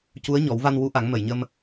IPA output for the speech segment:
cu˧˥ə̯ɲɔ˨˩˦wva˧n wu˧˥ʔa˨˩˦ŋ mə˨˩˨jɲə˧m

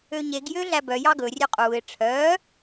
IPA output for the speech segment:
øɲeɡ jøɮæbœ jɑɡɵ rʲøqʼuːɪ̯ ʈ͡ʂʰœː

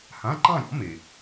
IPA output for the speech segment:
hã˧˥˧ǃɑ̃˥˧ɾʲɔ̰˩˥ me˨

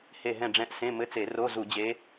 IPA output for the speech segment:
he˦˨ɦɛ̃˦˨ɖ͡ʐɛ̃˧˥˧ʔ sẽ˧˥˧mɘ˧˥˧t͡se˧˩˧ ro˧˥˧zu˧˩˧d͡ʑe˧˥

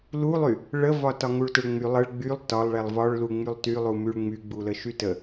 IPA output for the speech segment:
lulˠy | ɭəvɒ tɒŋuɭtəɭŋ͡my lˠəɭ ɡ͡bylˠ tɒlˠɭɛlˠ vɒɭlu ŋ͡mylˠtylˠu myɭŋ͡myɡ͡bu ləʃytə

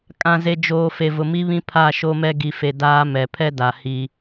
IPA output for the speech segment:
kʼã˨ze˨d͡ʒoː˨ fe˨vʊ˨mi˦βĩ˦ pʰa˦˨ ʃo˦mɛ˦ ɡi˨fe˨ daː˦mɛ˨ pʰɛ˦da˨ hi˦

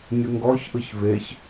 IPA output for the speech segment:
nʲʊŋɡɔçʔɯç veç

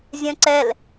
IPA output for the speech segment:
zʲœ̃ǀɛl

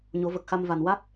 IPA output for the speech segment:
ɲo˨˩˦və˨˩k̚xa˧m va˨˩nwa˦˥t̚

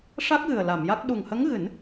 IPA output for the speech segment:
ʂa˦˥k̚ɣɨ˨˩ə̯ la˨˩˨mja˦˥k̚ ɗu˨˩ŋhə˧˥ŋɣɨ˨˩˦n

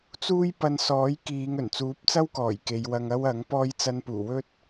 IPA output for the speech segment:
t͡suː˥jpɐ˧n sɔː˨˥jkiː˨˧ŋ ɵ˨˩nt͡suː˨˥p̚t͡sɐ˥wkɔː˨˩j ke˨˧jwɐ˧ŋɐ˥w ɐ˨˥ŋpɔː˥j t͡sɐ˧npuː˨˩wɵ˥t̚

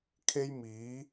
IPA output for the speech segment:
kʰe˥jmiː˨˥

